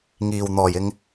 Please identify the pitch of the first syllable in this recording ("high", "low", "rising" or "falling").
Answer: low